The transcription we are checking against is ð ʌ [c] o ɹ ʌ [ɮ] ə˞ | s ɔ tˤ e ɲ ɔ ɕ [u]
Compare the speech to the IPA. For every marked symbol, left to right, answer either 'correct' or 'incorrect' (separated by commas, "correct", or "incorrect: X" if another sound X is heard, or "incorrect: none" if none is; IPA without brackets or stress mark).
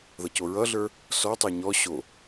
correct, correct, incorrect: o